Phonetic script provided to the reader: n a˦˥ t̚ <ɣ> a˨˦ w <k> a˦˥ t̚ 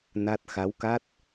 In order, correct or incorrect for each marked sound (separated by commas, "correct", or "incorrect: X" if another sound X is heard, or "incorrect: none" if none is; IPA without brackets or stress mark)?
incorrect: x, correct